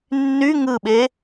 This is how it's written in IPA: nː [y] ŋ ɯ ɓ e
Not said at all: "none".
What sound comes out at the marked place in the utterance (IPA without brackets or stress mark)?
y